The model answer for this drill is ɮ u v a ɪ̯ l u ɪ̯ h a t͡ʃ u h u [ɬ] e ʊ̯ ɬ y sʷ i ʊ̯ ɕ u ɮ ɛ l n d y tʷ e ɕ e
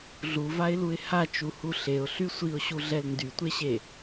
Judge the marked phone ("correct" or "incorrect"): correct